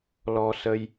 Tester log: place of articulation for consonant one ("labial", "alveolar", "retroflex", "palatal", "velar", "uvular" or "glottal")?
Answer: alveolar